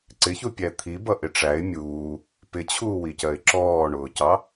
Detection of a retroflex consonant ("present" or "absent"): present